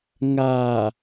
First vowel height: low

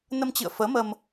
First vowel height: mid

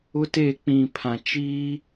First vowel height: high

